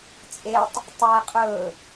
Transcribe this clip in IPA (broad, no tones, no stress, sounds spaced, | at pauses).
t͡sʼ e tˤ | tˤ æ qʼ ɵ